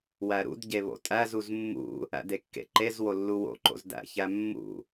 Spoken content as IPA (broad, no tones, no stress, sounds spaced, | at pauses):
w æ ɾ ṵ d ɟ e β o̰ tʼ æ z u z mː ṵ | æ̰ d e kː ḛ ǃ e z w o lː u w o̰ ǃ o̰ z d æ̰ ç æ mː ṵ